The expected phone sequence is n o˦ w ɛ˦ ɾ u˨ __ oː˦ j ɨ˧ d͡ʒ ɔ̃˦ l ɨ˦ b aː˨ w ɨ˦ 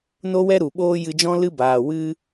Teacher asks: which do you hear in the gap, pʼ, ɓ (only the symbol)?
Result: ɓ